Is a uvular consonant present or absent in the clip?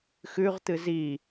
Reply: present